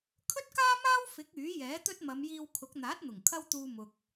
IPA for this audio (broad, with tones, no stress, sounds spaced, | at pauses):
kʰ ɵ˥ t̚ k aː˥ m aː˥ w f ɪ˨˥ k̚ yː˨˥ j ɛː˨˥ t̪ ɵ˥ t̚ m ɐ˨˧ m j iː˧ w kʰ ʊ˨˥ k̚ n̪ aː˨˥ t̚ n̪ ʊ˨˩ ŋ kʰ ɐ˥ w t̪ uː˧ m ʊ˨ k̚